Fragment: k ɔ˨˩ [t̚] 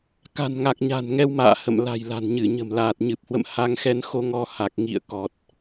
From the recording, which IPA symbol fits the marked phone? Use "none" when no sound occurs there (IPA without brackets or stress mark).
t̚